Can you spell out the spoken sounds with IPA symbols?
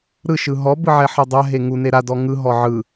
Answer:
ɾ ɯ ʃ ɯ ɦ ɔ b ɯ ʕ ɛ ħ ɤ dˤ a ɦ e ŋ u n e ɾ a d ɔ ŋ ɯ ɦ ɔ ʕ ɯ

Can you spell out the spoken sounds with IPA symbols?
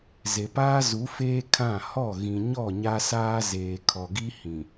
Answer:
z e˨ p aː˦ z u˨˦ f eː˦ kʰ ã˦˨ h ɔ˦˨ ɣ ĩ˨ ɲ ɔ˦˨ ɲ a˦ s aː˦ z eː˨ kʰ ɔ˨ ɡ i˦ h ĩ˨

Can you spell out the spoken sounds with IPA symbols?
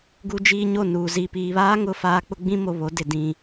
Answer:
ɡ u˦ d͡ʒ iː˦ ɲ o˦˨ n uː˨ z i˨ p iː˨ β aː˦ ŋ ʊ˦ f aː˦ k͡p ʊ˦ ɡ͡b ĩ˦ m o˨ β o˨˦ d ɪ˨ d ĩ˨

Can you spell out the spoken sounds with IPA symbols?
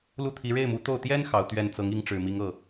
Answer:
l u˥˩ t̪ʰ i˧˥ ɻ e˥˩ ɪ̯ m u˧˥ t̪ o˥˩ ʊ̯ t̪ j ɛ˥ n x ɑ˧˥ ʊ̯ t̪ ɥ ɛ˥˩ n t͡s ɤ˧˥ ŋ i˧˥ ŋ ʈ͡ʂ ɻ̩˨˩ m i˧˥ ŋ ɤ˥˩

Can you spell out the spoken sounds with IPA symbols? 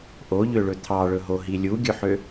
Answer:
ʔ o ʎ ø ɭ ɵ t̪ʰ ɑ ɭ ɵ ɦ o ɦ i lʲ u ɡʲ ɵ ħ ø

